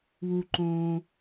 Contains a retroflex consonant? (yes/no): no